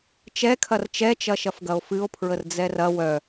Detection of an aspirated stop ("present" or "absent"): present